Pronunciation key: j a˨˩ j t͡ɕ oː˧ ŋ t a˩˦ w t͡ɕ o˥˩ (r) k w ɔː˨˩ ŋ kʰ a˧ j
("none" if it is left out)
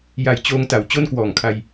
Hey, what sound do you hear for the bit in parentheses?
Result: n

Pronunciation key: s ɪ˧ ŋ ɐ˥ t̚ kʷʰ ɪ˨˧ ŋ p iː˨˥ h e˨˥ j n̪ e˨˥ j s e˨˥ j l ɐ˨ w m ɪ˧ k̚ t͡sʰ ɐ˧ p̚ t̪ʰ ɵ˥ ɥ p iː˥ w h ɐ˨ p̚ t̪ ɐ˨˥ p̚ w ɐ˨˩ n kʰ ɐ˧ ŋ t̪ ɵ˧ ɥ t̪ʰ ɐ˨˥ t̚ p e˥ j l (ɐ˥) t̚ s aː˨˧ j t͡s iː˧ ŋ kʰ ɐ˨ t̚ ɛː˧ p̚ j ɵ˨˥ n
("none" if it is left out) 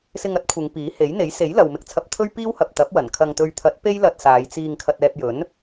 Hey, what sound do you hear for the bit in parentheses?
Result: ɐ˧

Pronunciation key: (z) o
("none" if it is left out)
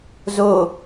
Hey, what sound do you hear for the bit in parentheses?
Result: z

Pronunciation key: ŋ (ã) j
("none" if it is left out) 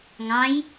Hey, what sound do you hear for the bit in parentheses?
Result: ɑ̃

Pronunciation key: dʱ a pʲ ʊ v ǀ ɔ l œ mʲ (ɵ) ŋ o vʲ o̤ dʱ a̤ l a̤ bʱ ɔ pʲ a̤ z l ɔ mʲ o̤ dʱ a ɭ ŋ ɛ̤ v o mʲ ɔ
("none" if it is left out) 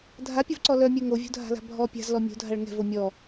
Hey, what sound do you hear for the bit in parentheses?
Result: œ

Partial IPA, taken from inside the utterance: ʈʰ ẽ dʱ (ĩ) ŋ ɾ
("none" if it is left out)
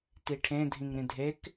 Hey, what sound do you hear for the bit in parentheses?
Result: ĩ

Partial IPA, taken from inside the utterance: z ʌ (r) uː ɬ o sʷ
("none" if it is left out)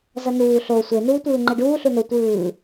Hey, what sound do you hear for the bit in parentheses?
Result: n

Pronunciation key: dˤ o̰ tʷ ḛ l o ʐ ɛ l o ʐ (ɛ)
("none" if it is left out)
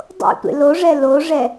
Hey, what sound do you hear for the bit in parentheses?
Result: ɛ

